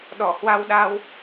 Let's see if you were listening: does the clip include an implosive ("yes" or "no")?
yes